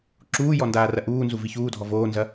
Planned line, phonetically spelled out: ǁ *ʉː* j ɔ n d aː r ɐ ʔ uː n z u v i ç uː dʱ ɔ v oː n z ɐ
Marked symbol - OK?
no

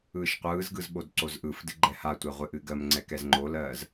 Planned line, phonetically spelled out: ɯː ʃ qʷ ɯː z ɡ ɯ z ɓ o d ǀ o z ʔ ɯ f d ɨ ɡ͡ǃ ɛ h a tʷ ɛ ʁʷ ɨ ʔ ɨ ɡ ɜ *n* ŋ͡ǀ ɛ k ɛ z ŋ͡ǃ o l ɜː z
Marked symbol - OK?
no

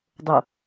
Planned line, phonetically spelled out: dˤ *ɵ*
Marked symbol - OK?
no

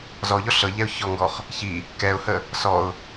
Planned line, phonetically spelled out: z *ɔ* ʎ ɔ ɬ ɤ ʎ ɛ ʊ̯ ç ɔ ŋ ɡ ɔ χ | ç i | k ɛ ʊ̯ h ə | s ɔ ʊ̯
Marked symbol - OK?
yes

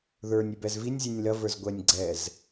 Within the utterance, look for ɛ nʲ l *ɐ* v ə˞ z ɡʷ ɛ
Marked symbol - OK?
yes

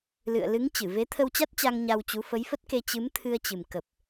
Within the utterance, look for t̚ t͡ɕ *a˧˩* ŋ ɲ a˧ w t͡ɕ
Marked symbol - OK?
no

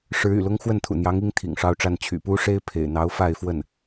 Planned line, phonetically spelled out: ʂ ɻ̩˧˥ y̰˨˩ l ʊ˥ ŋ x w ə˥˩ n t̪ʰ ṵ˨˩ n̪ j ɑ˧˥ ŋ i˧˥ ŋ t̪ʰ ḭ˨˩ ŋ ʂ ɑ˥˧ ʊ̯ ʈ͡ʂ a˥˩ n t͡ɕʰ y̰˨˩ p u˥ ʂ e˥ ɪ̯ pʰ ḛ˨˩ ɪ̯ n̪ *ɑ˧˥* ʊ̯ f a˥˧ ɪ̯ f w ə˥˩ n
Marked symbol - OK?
yes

